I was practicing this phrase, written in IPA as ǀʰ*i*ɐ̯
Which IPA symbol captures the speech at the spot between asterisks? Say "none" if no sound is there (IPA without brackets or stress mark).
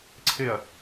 ɪ